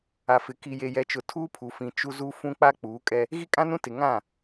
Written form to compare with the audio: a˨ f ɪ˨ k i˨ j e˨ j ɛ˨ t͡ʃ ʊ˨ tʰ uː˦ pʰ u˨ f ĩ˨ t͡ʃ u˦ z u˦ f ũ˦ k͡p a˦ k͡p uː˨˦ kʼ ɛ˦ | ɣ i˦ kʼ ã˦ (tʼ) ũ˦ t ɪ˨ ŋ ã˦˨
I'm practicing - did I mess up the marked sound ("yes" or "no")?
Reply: yes